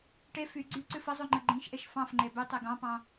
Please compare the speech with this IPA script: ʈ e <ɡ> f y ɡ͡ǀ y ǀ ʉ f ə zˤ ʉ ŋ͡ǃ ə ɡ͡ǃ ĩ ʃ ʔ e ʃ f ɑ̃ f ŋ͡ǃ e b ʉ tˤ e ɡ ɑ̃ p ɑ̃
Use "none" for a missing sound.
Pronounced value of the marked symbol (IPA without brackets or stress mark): none